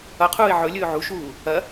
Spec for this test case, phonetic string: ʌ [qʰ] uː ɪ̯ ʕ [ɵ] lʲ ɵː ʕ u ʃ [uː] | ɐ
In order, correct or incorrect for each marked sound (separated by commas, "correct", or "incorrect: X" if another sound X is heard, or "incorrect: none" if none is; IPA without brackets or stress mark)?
correct, correct, correct